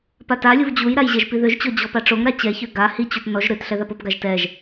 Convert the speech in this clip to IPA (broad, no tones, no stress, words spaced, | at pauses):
patalʲuv d͡ʑujɾaj ʑɛʒpiðøʒt͡ɕɔ d͡ʑɔpaʈ͡ʂoŋɾa t͡ɕɛçø ɡa hit͡ɕut nɔʒ ɾøtɬɛ ðapopɡaʒ tɛʒ